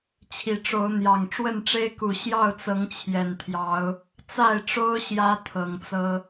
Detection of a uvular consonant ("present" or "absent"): absent